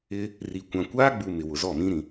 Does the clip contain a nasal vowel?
yes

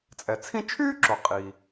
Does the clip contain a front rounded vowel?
yes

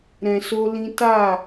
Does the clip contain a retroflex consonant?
no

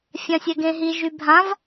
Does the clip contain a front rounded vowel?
yes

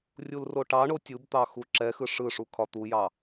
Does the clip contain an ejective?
no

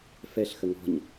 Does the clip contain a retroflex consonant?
no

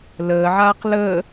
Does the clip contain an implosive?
no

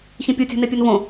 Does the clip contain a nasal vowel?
yes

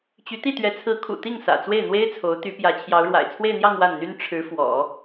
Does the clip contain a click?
no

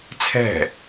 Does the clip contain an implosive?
no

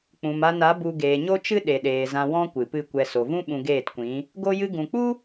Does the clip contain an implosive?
yes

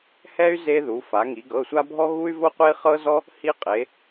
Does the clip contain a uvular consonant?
yes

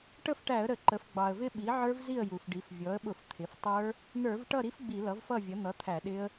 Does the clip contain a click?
yes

